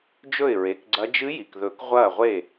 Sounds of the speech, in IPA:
d͡ʒ ɵ˥˩ ɪ̯ ɹ e˩˧˩ k ɡ͡ǀ ɐ˧˥ d͡ʒ ɨ˧˥ j i˩ k ð ɵ˨˩˦ k ʁʷ ɐː˥˩ ʁʷ e˥˩

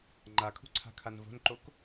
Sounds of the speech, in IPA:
ŋ͡ǃ a kʰ ṳ ǀʰ a̤ kʰ a n v o̤ n ǃ o k

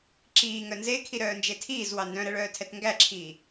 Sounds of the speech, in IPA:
ǁ iː ŋ œ n z e kʰ i ɾ œː n d͡ʒ e tʰ iː z w ɑ n d œ̃ ɾ ɛ ɭ œː tʰ ɛ t ŋ ɡ æ ǁʰ iː

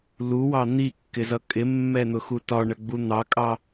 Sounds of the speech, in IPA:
l u w ɑ n̪ i kː ɪ z ʌ kʼ ɪ mː ɛ n̪ ʊ x u t ɒ ɳ ə ɡ͡b u n̪ ɑ kʼ ɑ

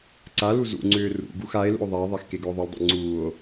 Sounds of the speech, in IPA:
ǀ a l u z ṵ ŋ͡ǀ ʏː r ṵ ɡ u x a e̯ l ṵ o̯ ðˤ a e̯ ðˤ a x k e ɡ ʏ o̯ ðˤ u l dˤ ḛ ŋ͡ǀ uː o̯

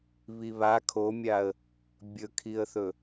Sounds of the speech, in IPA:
β i β a kʰ o mʲ a ə̯ | bʲ ɵ kʰ i ə̯ θ ɵ

